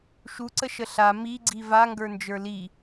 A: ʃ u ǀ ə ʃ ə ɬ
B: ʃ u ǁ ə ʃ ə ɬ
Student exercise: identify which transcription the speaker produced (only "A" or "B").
A